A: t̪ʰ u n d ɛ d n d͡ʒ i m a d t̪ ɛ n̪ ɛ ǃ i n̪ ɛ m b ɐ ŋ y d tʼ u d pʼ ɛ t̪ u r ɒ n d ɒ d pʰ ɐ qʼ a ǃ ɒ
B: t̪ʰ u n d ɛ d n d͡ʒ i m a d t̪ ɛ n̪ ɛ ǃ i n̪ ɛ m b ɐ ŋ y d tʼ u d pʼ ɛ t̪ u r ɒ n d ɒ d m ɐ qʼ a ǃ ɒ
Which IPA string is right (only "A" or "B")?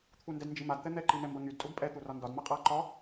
B